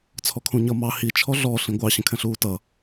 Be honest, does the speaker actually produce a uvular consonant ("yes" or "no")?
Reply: no